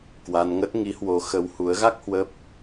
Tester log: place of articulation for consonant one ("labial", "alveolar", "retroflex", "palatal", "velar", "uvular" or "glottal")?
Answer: velar